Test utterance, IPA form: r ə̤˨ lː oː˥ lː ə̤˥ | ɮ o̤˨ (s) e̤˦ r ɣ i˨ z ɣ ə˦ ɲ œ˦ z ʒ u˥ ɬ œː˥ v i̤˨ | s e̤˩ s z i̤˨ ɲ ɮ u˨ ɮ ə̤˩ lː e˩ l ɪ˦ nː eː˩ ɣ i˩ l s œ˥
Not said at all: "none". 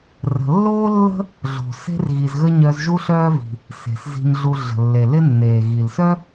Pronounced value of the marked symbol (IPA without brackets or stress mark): s